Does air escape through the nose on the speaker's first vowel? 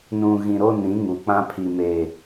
yes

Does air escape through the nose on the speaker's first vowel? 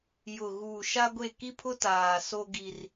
no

